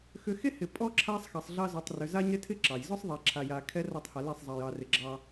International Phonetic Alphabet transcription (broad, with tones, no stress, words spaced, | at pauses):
xʏ˨xe˦ hɪ˨pʼɔ˦ ǁʰa˦sˤxɑ˨sˤɮɑ˦ zo˨tˤrʏ˨za˦ɲ ɾɪ˦tʰɪ˦ ǁɑ˨j zɔ˦sˤðˤɛ˨ǁʰa˨ ja˨kʰɛ˦ra˦˨tˤha˨ le˦˨sˤzˤɑ˨jɑ˨rɪ˨ ɡ͡ǁɑ˦